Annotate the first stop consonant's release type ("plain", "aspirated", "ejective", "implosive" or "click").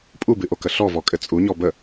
ejective